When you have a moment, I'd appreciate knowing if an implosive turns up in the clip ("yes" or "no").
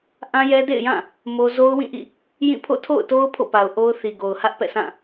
no